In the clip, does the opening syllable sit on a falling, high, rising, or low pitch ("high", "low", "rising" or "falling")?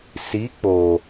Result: rising